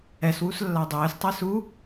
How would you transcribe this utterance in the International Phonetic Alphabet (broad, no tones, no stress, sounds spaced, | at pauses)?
ɛ s w u s lː a dˤ ɘː s tˤ ɛ s u